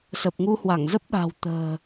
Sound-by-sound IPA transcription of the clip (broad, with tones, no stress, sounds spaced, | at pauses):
s ə˨˩ p̚ ŋ u˧ h w a˧˩ ŋ z ə˦˥ p̚ ɗ a̤˨˩ w t̪ ə̤ː˨˩